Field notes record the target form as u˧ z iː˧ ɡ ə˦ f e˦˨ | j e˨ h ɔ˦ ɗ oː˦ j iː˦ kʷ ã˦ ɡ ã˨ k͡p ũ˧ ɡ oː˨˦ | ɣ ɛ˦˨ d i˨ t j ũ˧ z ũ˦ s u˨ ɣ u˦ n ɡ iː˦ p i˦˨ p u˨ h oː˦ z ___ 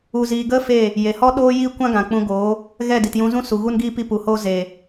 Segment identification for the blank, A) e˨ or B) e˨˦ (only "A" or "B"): A